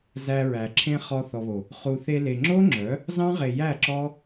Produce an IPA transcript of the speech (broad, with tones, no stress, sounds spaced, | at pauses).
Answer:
z æ˧ ɹ æ˨ ǁʰ ẽ˦ χ ɔ˧ θ ɔ˨ β o˨ | χ u˨ θ e˧ l e˨ ŋ͡ǁ o˦ ŋ͡ǁ œ˨˦ | z ɑ̃˦ ʁ e˨ j æ˦˨ ǁ ɔ˦